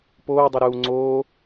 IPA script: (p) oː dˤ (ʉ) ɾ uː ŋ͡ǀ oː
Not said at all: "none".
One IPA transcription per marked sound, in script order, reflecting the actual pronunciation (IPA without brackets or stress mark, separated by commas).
p, ʉ